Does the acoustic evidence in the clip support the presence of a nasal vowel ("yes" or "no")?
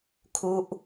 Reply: no